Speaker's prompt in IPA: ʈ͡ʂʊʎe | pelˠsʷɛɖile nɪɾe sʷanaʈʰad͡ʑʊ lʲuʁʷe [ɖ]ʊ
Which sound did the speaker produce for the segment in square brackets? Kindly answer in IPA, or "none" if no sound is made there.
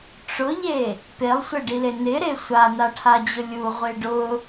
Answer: ɖ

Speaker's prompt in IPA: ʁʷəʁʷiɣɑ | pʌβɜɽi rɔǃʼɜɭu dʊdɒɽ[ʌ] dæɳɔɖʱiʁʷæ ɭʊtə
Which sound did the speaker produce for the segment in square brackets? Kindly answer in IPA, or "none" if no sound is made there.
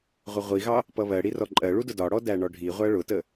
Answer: ɔ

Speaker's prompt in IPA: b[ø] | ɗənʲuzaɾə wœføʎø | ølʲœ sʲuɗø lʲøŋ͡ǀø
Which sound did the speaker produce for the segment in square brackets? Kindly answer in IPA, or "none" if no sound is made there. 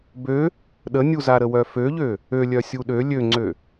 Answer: ø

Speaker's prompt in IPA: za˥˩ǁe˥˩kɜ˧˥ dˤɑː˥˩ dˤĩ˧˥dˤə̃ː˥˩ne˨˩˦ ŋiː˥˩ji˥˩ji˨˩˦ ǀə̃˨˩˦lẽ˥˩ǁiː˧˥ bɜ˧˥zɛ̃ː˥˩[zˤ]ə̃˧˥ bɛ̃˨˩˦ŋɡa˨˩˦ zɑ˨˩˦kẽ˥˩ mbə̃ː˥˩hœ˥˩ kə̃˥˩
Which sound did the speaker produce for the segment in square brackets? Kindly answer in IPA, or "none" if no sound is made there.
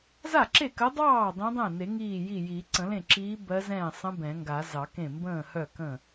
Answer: sˤ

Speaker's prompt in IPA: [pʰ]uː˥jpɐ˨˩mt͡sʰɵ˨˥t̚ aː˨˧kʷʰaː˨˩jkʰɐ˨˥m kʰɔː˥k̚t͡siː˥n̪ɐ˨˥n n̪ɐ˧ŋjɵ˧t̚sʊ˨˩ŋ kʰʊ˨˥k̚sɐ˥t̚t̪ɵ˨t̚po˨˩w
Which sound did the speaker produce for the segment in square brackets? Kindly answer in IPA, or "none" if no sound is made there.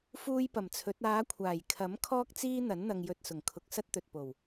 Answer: f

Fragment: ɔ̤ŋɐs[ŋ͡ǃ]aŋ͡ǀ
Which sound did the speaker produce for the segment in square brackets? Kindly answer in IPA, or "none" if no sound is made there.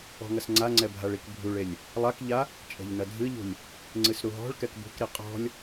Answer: ŋ͡ǀ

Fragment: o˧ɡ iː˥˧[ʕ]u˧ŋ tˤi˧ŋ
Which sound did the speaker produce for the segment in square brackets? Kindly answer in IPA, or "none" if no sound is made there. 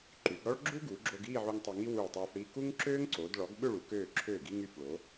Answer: ʕ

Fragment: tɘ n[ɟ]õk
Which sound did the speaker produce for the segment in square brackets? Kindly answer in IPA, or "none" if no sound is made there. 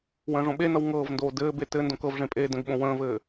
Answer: d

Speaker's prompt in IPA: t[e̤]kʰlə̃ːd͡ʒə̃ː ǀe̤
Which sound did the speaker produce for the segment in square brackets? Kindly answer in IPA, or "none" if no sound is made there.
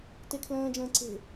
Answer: e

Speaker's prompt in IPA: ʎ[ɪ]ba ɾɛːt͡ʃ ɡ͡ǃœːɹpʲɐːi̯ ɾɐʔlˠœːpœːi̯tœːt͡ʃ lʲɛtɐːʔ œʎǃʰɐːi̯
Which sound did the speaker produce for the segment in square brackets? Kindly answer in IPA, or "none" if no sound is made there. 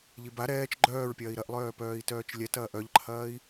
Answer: i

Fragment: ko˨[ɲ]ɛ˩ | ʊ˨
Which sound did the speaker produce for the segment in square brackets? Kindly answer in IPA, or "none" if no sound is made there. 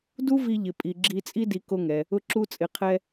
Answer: ŋ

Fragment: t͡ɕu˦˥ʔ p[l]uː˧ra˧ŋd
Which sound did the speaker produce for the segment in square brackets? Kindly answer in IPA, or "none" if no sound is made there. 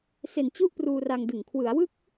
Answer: r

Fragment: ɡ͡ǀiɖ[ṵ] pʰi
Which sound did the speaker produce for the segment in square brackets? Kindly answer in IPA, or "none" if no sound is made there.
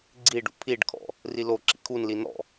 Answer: ṵ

